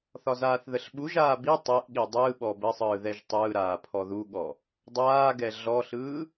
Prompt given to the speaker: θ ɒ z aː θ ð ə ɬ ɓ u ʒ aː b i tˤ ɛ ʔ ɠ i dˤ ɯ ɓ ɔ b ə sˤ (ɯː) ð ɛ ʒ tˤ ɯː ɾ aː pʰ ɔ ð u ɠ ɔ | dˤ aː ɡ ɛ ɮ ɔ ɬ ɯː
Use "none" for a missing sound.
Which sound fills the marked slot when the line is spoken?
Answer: ɯː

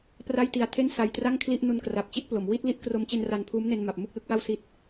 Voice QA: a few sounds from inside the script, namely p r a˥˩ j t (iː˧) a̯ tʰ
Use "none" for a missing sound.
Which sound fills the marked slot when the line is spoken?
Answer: i˧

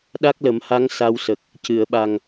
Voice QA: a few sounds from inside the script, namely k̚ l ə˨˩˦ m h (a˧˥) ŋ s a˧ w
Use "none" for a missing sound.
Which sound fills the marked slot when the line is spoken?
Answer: a˧˥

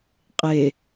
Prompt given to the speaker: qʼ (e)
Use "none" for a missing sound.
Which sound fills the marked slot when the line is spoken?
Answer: e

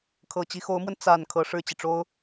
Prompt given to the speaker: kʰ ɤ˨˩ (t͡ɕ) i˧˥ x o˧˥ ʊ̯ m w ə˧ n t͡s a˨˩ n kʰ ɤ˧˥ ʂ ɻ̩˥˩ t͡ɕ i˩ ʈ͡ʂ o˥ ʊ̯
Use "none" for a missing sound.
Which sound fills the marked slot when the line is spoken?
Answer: t͡ɕ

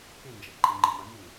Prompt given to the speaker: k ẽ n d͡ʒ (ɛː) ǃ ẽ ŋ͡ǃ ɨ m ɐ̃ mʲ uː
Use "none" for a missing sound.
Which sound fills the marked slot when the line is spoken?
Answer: ɛ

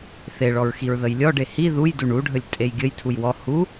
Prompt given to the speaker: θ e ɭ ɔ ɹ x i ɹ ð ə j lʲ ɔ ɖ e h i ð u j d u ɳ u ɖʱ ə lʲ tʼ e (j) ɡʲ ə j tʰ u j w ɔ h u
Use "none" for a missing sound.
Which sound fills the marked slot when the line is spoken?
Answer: j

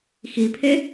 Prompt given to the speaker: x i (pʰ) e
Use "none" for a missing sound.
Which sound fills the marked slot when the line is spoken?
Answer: pʰ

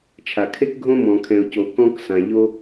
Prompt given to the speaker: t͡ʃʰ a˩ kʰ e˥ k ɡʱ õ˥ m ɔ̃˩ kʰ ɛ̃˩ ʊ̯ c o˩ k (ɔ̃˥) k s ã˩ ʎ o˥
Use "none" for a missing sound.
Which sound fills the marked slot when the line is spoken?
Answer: ɔ̃˥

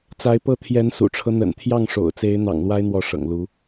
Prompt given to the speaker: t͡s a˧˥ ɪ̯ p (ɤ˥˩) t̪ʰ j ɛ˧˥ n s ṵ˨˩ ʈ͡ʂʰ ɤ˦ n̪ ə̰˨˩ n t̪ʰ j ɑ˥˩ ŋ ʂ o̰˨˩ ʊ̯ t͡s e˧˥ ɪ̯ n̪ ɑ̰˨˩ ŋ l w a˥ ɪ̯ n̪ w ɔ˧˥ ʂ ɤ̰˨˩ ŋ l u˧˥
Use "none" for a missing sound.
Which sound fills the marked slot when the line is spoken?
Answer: ɤ˥˩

